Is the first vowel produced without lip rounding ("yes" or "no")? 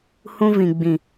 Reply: no